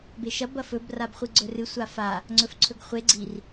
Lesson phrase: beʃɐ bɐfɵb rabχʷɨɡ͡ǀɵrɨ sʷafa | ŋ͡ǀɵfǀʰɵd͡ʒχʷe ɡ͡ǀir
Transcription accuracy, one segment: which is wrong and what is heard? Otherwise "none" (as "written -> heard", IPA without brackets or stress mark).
d͡ʒ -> ɡ